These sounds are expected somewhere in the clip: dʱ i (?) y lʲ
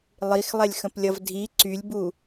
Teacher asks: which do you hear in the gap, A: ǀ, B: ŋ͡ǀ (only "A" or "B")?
A